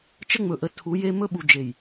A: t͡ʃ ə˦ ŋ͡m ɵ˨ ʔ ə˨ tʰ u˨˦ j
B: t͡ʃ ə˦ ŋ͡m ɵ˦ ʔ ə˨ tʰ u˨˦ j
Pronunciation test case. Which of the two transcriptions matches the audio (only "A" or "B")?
A